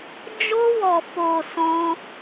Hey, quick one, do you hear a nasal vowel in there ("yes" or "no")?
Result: yes